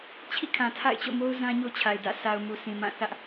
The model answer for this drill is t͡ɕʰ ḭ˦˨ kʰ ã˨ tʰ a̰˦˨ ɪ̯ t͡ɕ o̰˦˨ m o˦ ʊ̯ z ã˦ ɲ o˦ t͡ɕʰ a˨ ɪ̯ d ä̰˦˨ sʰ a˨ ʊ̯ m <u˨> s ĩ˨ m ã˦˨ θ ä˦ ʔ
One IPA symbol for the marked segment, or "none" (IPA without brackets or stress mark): u˨